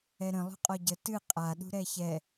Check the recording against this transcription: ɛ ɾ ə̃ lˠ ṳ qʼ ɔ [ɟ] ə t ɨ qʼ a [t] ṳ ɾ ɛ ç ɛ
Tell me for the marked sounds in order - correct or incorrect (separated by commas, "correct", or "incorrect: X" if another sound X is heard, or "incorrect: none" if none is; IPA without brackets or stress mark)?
correct, incorrect: ɗ